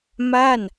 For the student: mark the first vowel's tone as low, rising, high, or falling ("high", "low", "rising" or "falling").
falling